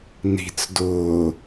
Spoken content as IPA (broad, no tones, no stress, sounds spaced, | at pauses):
n i̤ t͡s d ʊː